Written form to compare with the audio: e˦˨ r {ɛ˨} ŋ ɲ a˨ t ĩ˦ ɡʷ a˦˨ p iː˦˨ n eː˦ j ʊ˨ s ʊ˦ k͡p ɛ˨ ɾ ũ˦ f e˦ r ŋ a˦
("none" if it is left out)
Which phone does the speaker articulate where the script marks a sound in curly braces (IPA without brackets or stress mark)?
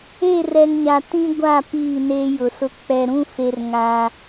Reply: ɛ˨